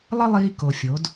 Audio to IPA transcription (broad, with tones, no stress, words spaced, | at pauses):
lˠə˦lˠiː˧ ko˨fʲo˨˦d